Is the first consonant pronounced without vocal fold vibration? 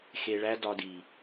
yes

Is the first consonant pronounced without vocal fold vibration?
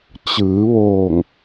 yes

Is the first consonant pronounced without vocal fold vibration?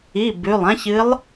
no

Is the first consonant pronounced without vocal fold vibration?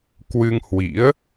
yes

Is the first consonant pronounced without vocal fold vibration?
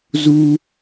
no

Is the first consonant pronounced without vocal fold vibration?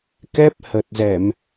yes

